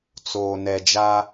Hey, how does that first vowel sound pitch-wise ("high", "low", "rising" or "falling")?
low